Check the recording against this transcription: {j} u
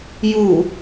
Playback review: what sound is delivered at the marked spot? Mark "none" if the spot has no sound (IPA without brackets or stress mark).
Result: j